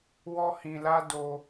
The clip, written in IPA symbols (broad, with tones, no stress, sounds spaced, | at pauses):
w ɔ˦ h ĩ˧ l a˦ d o˧